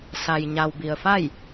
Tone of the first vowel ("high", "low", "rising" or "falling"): low